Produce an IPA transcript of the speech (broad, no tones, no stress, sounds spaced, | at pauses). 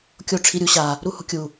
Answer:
kʲ o ʈ͡ʂʰ i ɾʲ u ɕ a | ɾ u h ṳ kʲ u